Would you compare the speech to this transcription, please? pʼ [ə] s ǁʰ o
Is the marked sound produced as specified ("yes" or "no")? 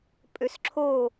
no